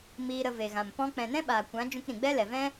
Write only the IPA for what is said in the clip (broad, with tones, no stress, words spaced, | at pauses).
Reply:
miː˧ɾə˧ve˨ɣã˨m pɔ̃˧ k͡pɛ̃˨nɛ̃˦ɓaː˨kʷã˨˦ d͡ʒũ˧kɾĩ˨ɡ͡bɛ˦lɛ˨ vɛ̃˦